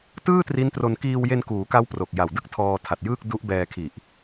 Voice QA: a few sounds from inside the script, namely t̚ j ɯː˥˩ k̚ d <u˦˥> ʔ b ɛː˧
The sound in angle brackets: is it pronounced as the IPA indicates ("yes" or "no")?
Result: yes